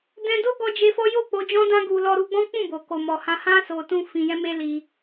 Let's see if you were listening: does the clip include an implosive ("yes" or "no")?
no